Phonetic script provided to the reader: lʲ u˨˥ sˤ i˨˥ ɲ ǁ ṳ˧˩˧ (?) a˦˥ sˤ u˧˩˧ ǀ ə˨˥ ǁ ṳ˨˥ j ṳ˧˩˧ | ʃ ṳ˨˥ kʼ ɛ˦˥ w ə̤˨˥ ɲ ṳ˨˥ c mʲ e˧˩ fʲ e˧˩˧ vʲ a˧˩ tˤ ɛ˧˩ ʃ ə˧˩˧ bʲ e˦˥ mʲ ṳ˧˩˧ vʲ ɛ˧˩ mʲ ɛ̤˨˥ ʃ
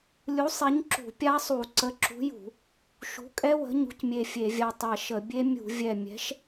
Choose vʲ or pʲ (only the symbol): pʲ